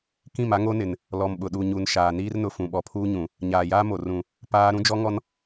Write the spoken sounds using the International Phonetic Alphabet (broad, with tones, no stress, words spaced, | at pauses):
kĩ˦˨ma˦ŋo˦nɪ˨n | lɔ˨mɓʊ˨ɗu˨ɲu˨n ʃaː˨niː˦rnʊ˨ fũ˨ɓɔ˨pʰuː˦ɲũ˨ | ɲaː˨jaː˦mo˨ rũ˨ | paː˦ ɾũ˦d͡ʒɔ˦ŋɔ˦n